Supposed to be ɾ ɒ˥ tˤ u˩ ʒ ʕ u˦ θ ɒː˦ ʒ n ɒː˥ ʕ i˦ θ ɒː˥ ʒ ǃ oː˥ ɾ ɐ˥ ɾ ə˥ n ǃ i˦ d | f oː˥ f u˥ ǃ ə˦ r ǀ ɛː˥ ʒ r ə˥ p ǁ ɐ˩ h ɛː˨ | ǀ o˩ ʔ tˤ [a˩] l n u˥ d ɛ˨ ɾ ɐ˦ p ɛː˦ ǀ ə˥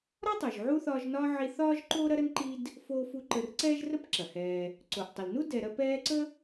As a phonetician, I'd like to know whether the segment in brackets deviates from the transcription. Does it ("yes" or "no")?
yes